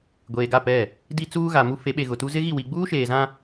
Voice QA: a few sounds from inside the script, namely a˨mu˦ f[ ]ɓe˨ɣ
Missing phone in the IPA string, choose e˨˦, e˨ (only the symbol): e˨˦